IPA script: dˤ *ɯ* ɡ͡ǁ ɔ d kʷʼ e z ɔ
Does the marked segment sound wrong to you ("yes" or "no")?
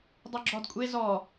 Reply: yes